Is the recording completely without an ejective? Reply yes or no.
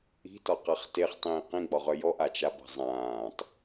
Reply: yes